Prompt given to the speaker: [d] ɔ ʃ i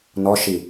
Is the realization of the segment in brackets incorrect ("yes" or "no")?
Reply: yes